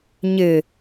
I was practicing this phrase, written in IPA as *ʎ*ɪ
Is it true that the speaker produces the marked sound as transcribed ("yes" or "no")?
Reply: no